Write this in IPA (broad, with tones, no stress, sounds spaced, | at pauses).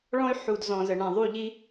ɭ ɔ̃˦ y̯ ħ u˨ d z ɔ̃˨ z ə˨ ɳ ã˨ ðˤ u˦˨ ʎ i˦